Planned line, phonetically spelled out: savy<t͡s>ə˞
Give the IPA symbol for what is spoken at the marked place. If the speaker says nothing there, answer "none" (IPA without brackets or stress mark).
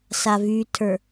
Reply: tʰ